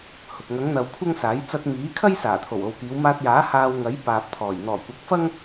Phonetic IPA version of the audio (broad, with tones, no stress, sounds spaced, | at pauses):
h ʊ˨ k̚ ŋ ɐ˨˧ ŋ n̪ ɐ˨ w kʷʰ ɐ˥ ŋ s aː˨˥ j t͡s ɐ˧ t̚ m iː˨˥ kʰ ɐ˥ j s aː˨˩ t̪ʰ o˨˩ w o˨ w k iː˨˧ w m aː˧ t̚ j aː˨˥ h aː˧ w ŋ ɐ˨˥ j p aː˨ p̚ t̪ʰ ɔː˨˩ j n̪ ɔː˨˩ kʷ ɐ˨˥ k̚ f ɐ˥ ŋ